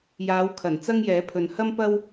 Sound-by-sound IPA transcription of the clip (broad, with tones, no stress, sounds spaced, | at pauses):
j aː˨˧ w kʰ ɐ˨˩ n t͡s ɐ˥ ŋ j ɛː˨˥ pʰ ɵ˨ n h ɐ˥ m p ɐ˥ w